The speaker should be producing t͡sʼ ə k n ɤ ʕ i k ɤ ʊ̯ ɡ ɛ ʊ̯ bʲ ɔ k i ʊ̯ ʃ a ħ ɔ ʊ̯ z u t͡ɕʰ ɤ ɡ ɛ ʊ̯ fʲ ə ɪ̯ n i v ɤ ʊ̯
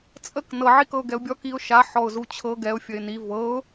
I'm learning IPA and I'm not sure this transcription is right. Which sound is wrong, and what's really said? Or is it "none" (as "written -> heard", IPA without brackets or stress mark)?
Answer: none